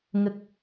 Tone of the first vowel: low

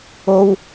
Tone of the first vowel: high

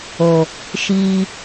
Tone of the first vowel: low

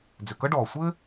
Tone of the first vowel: low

